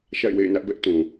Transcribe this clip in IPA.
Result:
ʃ a̰˦˨ ɪ̯ w ḛ˦˨ ɪ̯ n ä˦ ʔ b ɛ˦ ʔ t ũ˨

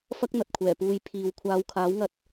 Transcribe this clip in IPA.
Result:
f ɐ˥ k̚ n̪ ɐ˨ t̚ kʷʰ ɛː˨˩ p uː˨˧ j pʰ iː˨ w kʷʰ aː˨˧ w kʰ aː˨˥ w ŋ ɐ˧ t̚

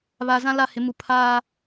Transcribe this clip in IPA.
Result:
β a˨ z ã˦ l a˦˨ h ɪ˨˦ m u˨ pʰ aː˦

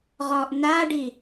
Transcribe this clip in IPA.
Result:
ʁ ɔ ʔ n a ɖ i

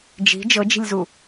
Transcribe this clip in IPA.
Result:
d͡ʒ i̤ d͡ʒ ɤ d͡ʒ i̤ lʲ z u

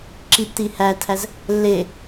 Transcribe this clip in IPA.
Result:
ǁ i p t i h æ tʰ æ z | lː e

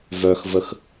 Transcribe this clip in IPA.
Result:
v œ x v ə x

